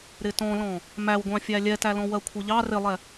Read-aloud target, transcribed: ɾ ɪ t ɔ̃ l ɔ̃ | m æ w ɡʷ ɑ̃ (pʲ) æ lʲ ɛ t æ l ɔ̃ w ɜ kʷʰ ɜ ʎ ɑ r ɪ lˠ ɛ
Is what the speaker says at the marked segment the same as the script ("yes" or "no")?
no